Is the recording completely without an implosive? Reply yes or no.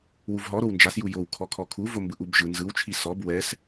yes